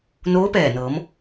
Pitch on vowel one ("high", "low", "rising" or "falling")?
rising